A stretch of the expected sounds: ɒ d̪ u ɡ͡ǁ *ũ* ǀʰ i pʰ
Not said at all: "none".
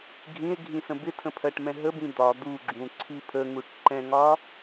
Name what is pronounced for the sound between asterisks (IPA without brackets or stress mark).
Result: ũ